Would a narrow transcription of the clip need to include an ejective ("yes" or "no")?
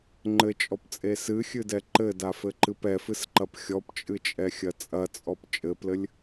yes